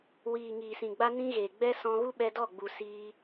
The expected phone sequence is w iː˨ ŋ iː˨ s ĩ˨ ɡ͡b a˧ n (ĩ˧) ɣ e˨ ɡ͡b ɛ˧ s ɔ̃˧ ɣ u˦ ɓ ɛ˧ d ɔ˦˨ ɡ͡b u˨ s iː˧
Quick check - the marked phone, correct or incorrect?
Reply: correct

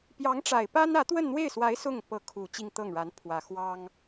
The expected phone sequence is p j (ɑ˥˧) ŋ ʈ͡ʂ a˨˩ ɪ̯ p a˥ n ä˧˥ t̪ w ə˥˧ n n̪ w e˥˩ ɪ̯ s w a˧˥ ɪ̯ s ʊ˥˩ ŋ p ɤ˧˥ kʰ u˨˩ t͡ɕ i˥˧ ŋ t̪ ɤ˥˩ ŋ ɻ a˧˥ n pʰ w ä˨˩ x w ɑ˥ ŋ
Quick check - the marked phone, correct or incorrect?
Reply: incorrect: ɑ˧˥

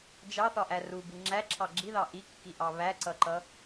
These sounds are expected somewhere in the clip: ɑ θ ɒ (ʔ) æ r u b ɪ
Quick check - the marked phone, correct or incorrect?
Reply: correct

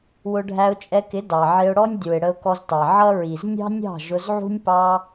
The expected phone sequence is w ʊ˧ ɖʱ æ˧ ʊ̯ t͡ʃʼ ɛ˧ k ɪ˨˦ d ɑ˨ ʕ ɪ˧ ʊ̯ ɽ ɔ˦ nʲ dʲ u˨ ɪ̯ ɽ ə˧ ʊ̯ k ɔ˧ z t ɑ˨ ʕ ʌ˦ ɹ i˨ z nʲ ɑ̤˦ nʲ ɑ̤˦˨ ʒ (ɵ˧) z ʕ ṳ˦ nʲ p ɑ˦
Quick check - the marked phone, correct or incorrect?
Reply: incorrect: ʊ˧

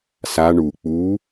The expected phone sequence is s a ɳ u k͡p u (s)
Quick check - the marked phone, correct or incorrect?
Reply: incorrect: none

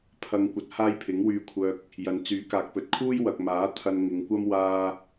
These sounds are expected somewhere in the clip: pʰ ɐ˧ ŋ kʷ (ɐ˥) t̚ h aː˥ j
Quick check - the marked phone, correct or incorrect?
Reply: incorrect: ɐ˨˥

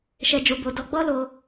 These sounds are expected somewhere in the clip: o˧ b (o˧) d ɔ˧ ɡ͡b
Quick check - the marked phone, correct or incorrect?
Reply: correct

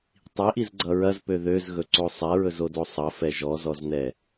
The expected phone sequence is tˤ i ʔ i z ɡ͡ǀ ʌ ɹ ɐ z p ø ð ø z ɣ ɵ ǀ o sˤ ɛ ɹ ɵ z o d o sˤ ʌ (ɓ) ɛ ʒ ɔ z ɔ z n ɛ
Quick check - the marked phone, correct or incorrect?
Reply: incorrect: f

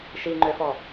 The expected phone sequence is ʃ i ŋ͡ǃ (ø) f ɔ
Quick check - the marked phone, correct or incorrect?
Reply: correct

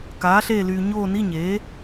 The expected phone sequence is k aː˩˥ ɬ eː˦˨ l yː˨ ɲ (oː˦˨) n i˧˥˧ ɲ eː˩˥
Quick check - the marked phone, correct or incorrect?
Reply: correct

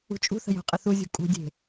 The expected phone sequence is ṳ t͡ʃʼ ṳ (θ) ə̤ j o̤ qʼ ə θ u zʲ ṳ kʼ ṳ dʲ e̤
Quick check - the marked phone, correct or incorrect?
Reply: correct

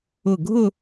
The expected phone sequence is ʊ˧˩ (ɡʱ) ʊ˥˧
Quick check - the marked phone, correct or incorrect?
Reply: correct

